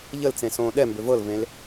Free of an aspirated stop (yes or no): yes